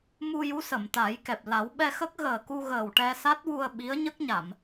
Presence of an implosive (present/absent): present